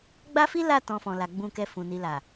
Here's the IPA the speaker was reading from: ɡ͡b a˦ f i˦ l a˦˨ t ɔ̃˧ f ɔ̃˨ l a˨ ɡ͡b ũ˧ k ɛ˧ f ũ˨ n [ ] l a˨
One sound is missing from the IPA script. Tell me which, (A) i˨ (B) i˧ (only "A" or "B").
A